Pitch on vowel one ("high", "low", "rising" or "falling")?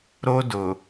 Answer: high